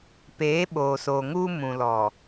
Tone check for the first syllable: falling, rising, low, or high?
rising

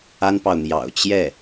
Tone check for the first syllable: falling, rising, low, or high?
high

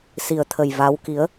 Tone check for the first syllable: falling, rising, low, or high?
low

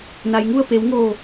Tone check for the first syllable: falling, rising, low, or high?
low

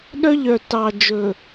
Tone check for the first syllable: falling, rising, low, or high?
high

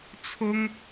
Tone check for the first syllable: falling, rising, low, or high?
high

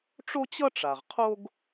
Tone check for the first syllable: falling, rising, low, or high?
high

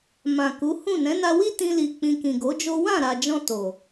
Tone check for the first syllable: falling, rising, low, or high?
low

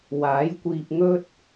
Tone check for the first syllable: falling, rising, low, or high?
rising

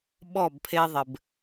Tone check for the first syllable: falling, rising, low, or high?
falling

